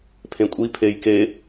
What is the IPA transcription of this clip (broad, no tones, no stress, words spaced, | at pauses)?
pʰẽkʷʼi pʰejke